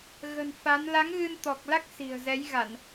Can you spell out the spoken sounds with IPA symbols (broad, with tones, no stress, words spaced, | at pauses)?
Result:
ɣə̤˨˩nfa˨˦n la˨˦ŋɣɨ˧nt̪ɔ˨˩k̚la˦˥k̚ si̤˨˩ə̯zɛ˨˦jɣa˧˩˨n